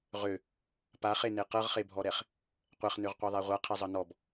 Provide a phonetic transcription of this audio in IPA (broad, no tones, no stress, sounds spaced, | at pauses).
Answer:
ʁ ø | p a χ e n e q ɤ ʁ χ e bʱ ɔ ɾ ɛ χ | qʷ ɛ χ n ø ʁ qʷ ɛ ðˤ æ ʁʷ a qʰ i zˤ ɤ n ɔ b